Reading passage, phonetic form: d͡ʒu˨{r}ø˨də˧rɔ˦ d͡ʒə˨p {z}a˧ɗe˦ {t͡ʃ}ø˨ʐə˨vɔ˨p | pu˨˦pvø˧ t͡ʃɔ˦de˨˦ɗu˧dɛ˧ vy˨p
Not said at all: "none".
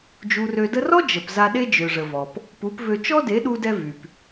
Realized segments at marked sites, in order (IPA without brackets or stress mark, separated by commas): r, z, d͡ʒ